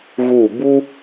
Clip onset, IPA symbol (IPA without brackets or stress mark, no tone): ɣ